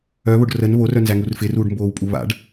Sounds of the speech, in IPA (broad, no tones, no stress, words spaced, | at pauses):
œβoɖ rən βorœnzæŋur fɪruːɖmboːwpʼu βa̰ɖ